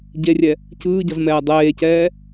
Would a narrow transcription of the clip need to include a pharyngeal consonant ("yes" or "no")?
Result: no